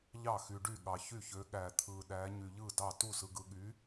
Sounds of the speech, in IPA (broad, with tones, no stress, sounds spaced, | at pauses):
ʎ ɑ˥˨ x y˧ ɖ y˥˨ ɠ ɑ˧ ç y˥˨ ç ø˧˥ ɠ æ˧ t̪ʰ ɯ˧ ɗ æ˧˥ ɲ y˧ ʎ ɯ˥˨ d ɑ˥˨ t u˥˨ s ɯ˧ ɡ ɯ˧ ɠ y˧˥